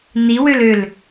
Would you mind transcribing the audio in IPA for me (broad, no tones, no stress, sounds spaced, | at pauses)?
n i w ø l ø l